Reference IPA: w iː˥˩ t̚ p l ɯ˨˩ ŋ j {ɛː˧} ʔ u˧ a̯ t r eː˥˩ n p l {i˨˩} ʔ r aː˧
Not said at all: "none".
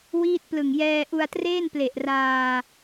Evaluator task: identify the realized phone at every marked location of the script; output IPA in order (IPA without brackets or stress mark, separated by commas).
ɛː˧, e˨˩